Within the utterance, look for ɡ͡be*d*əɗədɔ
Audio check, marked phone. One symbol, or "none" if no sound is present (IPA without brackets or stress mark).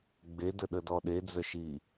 d